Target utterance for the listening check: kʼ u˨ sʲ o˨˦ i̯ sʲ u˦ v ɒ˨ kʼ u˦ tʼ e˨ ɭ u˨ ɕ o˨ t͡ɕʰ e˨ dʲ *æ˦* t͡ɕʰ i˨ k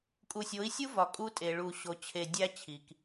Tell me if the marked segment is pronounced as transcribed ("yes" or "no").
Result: yes